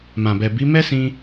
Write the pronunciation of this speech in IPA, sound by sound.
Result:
m ã˨ b ɛ˨ b i˨˦ m ɛ˦ s ĩ˧

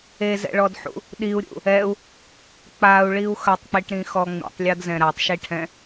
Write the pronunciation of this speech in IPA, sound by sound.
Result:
e z ɛ̰ ɭ ɔ d ħ ṵ | ɗ i u̯ ɾʲ ṵ | ɛ u̯ | k͡p a u̯ ɭ i u̯ x ɐ tˤ k͡p i ʈ ɾ ĩ x ɔ ŋ͡m ḭ tˤ lʲ ɔ d z ɛ̃ ɾ a tˤ ʃ i ʈʰ ɛ̃

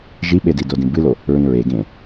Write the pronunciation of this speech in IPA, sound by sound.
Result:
ʒ i ɓ e d i d o d ĩ b ɨ l o | ɹ ĩ ɹ e ɡ ẽ

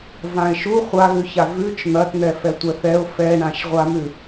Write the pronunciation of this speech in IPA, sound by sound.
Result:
v ã ɪ̯ ʃ u χʷ a ɣ ʉ ç a v ʉ t͡ʃ n̪ ɐ t n̪ ɛ f ɛ tʷ ɛ θ ɛ ʊ̯ f ɛ ɳ ã ʃ ʁʷ a m ʉ

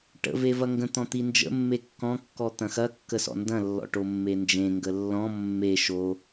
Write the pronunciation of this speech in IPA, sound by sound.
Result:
ʈ ə̰ v e v ɐ ŋ ɡ ə̃ t̪ ɔ̃ t̪ i n d͡ʒ ə̰ mː e kː ɔ̃ kː ɔ t̪ ɐ̃ x ɐ kː ə s ɔ̰ n d ɐ̃ lː ɔ̰ ʈ o mː e n d͡ʒ ẽ ŋ ɡ ə lː ɔ̃ mː e ʃ o

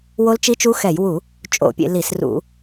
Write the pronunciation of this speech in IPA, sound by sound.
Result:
w o˦˥ l t͡ʃ i˦˥ t͡ʃ u˦˥ x ɛ˧˩˧ j w u˧˩˧ | t͡ʃʼ o̰˧˩˧ pʲ ḛ˧˩˧ l i˧˩˧ s r ṵ˧˩˧

